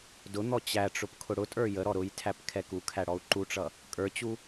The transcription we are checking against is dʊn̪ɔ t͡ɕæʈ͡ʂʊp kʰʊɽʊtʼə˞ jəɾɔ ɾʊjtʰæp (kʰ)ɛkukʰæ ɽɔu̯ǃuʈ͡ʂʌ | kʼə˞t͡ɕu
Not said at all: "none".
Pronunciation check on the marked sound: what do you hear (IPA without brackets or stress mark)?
kʰ